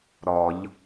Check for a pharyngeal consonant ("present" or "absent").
absent